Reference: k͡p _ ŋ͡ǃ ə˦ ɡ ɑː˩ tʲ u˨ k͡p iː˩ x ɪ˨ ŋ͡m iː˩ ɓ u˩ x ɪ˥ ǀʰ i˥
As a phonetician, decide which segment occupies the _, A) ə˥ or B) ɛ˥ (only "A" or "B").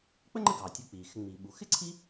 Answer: A